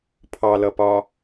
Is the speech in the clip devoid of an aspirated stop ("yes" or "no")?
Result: no